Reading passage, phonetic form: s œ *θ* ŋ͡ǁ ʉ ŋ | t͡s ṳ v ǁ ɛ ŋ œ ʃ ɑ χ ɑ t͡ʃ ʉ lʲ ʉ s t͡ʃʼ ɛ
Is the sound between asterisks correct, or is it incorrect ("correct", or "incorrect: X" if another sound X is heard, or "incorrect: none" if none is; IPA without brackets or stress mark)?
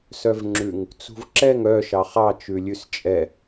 incorrect: v